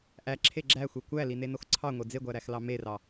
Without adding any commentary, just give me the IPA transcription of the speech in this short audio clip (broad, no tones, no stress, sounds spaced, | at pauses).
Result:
ʔ æ ǁʰ e ɡ͡ǁ æ xʷ e kʷ æ l i n e n o x ǀʰ ɑ ŋʷ e d͡z e ɡʷ æ ɾ æ x l ɑ m e r ɑ